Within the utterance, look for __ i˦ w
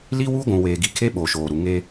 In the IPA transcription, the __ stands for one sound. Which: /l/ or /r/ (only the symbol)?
l